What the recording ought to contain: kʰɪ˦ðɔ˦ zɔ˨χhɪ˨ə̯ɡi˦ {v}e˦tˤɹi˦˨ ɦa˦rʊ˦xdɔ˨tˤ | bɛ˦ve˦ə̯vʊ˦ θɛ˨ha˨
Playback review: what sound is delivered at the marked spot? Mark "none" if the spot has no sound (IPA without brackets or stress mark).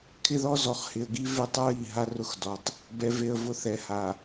v